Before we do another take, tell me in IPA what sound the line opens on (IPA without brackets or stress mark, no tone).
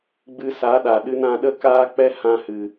ɡ͡b